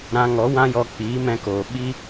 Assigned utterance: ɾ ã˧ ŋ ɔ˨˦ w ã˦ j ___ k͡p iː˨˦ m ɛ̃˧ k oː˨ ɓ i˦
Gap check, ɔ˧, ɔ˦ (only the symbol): ɔ˧